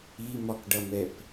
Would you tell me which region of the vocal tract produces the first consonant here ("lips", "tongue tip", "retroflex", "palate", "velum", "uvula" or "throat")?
lips